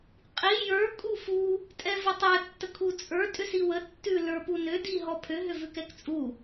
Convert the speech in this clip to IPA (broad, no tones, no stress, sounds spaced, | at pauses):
qʼ i j ə˞ kʼ u f u | tʼ ɛ v ə tˤ ɛ tː ə kʰ u t͡sʼ ə˞ tʼ ʏ s i w ə tː ʉ l ə˞ p u n ʏ d i ɦ ɔ pʰ ʏ ɦ ʏ v ʉ k ɛ k t͡sʼ u